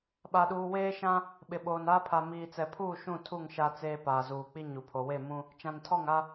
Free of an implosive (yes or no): no